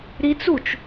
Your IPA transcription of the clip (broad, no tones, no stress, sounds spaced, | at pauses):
ɾ i t͡s u t͡ʃ